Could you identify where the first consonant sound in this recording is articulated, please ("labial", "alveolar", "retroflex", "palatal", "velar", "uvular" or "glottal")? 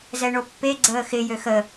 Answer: alveolar